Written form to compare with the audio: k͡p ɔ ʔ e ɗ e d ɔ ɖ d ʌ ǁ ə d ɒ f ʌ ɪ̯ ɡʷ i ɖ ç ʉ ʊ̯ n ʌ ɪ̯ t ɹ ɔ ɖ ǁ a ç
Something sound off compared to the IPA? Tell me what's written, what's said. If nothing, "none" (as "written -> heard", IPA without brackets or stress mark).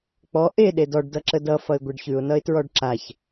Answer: ɒ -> ʌ